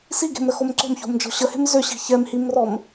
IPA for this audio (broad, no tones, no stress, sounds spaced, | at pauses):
s i ɡ e̤ m ɾ ə x o m ǀ o̤ m ç o̤ m d͡ʒ ɔ̤ ɕ ə h e̤ m z ʏ ɕ i̤ ç ɛ m h i m r ɔ m